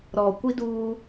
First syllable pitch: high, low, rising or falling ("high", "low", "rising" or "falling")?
low